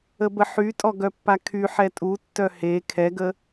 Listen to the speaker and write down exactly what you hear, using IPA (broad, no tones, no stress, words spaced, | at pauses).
əbəħytʼɔ ɡœpːakʰyħɛ tʼutːœ he kʰɛɡə